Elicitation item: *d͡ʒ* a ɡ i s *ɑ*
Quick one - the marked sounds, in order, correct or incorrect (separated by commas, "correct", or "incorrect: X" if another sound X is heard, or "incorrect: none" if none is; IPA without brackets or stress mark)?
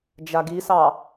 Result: correct, correct